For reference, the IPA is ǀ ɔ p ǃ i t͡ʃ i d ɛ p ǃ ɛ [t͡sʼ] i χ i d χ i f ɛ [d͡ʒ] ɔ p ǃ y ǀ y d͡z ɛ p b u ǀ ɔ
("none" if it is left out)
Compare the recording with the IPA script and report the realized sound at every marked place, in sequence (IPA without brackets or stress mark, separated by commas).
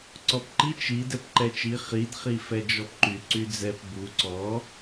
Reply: t͡ʃ, d͡ʒ